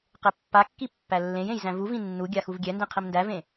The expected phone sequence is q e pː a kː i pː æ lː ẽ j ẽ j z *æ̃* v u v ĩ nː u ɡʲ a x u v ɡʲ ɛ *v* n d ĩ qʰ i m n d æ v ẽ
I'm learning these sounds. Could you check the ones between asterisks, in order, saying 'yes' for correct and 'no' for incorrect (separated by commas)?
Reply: yes, no